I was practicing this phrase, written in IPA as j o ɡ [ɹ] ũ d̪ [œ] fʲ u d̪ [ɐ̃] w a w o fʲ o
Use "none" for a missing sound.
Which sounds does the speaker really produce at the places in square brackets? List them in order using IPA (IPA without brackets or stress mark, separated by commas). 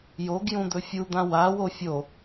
j, ɵ, ã